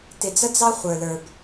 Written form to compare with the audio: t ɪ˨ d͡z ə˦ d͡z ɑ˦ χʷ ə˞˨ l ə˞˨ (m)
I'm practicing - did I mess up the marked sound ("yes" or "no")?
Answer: yes